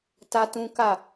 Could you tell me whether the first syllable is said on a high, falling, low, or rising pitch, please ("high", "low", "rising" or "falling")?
high